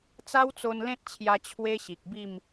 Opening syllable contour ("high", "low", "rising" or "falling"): high